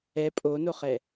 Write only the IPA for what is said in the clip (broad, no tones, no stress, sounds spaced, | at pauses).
ɛ pʼ o n o χ ɛ